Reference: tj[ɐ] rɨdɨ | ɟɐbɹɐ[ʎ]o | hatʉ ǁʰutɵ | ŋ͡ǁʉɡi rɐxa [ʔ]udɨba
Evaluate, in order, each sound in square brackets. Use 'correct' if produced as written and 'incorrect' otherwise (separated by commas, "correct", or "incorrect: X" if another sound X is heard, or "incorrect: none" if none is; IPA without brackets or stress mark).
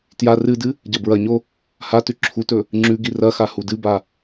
incorrect: a, incorrect: ɲ, incorrect: h